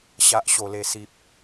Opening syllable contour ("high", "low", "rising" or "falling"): low